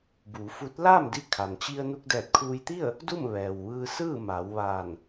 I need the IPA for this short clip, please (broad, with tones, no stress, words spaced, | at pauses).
buː˩˧fu˧˥t̚ laː˥˨mdi˧kʰa˩nt͡ɕi˧ə̯ nu˧k̚dɛː˧˩t̚kʰuː˧jt̪i˥˨ə̯ | du˥˨m ʋɛː˩wʋɯː˧sɯː˥˨ ma˩˧wʋaː˧˩n